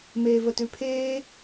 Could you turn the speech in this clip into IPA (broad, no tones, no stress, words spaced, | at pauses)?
meːvətʉpʰeː